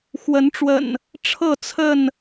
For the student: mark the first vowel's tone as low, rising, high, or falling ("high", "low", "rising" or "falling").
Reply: rising